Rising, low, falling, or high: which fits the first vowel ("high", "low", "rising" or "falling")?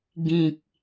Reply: low